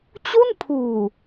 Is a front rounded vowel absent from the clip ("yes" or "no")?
yes